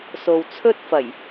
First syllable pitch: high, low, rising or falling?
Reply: low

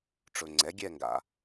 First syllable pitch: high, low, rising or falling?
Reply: low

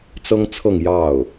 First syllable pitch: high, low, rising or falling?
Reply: high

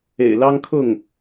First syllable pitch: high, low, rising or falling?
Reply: low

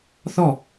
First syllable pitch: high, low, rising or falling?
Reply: falling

